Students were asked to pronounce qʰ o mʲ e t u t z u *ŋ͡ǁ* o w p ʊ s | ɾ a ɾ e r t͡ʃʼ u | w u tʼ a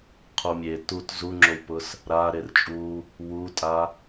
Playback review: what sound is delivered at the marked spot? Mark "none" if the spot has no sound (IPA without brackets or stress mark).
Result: ŋ͡ǁ